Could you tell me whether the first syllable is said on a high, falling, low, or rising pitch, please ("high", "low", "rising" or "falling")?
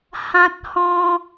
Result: high